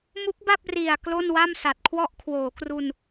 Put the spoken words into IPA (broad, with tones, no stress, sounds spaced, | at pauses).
m u˦˥ k̚ b a˥˩ p̚ r i˨˩ a̯ k l o˥˩ n w a˥˩ m s a˨˩ t̚ kʰ w ɔ˥˩ ʔ kʰ w oː˩˦ k r u˧ n